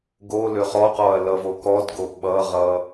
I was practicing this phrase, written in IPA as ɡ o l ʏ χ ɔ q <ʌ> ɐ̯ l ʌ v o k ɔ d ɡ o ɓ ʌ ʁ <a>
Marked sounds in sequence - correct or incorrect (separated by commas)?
incorrect, incorrect